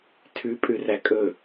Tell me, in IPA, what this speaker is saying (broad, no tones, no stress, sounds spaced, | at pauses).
tʰ ʉ pʼ ʉ r æ kʼ ɵ